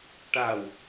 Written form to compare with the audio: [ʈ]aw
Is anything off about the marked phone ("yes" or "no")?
no